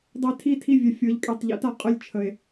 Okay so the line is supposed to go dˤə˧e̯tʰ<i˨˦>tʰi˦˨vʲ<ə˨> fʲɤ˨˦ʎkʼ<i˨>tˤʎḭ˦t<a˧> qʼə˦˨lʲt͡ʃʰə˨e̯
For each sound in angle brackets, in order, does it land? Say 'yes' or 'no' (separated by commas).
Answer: no, no, no, yes